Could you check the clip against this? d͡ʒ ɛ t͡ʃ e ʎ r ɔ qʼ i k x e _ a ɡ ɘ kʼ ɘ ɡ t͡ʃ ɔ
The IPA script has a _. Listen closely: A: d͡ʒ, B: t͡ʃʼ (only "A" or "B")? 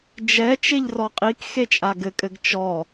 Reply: B